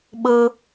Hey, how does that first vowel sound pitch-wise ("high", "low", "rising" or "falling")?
high